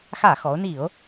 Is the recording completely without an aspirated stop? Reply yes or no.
yes